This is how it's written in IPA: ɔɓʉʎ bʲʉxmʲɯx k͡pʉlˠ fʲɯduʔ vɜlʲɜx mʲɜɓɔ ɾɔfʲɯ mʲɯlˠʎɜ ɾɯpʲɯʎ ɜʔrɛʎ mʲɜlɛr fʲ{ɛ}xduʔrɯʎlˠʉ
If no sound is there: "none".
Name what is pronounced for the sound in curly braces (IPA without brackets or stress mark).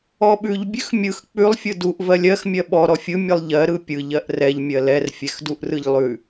ɛ